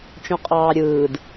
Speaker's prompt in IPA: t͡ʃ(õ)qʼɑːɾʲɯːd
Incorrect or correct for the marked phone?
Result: correct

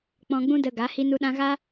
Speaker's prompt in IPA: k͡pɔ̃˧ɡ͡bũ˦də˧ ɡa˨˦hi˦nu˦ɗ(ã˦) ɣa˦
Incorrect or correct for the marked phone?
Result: correct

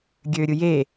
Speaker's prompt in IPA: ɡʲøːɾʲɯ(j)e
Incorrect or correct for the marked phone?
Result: correct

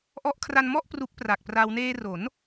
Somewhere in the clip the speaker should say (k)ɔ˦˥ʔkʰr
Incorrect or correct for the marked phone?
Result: incorrect: ʔ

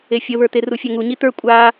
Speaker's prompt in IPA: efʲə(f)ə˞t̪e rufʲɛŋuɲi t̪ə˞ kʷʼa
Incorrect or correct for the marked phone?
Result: incorrect: β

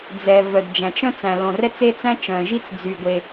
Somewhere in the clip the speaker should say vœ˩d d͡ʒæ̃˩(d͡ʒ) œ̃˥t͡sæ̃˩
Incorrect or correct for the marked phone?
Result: incorrect: t͡ʃ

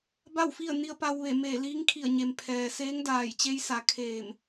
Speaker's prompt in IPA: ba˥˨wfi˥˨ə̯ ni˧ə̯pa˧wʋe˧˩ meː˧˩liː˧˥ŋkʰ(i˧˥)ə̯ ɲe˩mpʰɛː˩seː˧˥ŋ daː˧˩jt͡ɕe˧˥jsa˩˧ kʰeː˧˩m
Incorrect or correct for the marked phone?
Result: incorrect: i˧˩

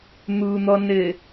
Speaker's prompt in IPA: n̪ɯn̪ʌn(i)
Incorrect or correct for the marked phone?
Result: incorrect: e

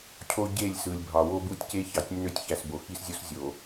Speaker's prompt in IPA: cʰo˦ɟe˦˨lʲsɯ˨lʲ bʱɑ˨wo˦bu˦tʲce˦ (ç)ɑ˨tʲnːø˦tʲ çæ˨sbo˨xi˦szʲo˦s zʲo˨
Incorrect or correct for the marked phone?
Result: correct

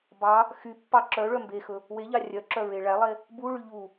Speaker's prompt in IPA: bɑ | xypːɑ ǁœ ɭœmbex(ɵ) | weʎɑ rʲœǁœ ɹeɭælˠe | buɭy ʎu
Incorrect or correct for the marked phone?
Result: correct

